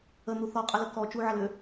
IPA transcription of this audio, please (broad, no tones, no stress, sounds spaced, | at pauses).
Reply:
ə n̪ u θ ɔ qʼ ə l ə k ɔ t͡ʃ u ʕ ɐ l ø